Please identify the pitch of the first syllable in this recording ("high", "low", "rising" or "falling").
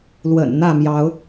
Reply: low